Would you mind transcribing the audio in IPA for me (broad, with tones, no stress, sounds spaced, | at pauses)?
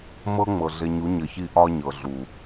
m ɤ˦ ŋ͡m ɤ˨ ɮ e˨ ɲ u˨˦ ɲ ɘ˨ ç i˦ ʔ ɒ˦ ɲ ɤ˨ ɮ u˨